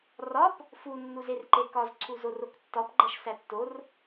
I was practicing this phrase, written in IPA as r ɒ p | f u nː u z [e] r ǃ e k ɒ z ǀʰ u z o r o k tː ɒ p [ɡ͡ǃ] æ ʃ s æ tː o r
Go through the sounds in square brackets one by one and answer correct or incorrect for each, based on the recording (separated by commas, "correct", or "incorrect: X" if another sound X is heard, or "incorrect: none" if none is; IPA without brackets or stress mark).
correct, correct